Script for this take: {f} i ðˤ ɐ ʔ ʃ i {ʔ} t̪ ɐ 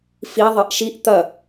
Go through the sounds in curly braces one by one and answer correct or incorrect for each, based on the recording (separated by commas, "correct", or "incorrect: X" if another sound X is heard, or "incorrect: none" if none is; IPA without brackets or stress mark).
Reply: correct, correct